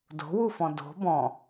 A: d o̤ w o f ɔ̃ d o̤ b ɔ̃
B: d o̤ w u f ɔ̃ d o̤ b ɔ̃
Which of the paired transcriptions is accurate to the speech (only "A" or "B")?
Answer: B